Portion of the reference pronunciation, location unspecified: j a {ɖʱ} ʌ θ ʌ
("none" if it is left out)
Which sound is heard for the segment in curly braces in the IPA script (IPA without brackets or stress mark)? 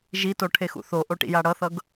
ɽ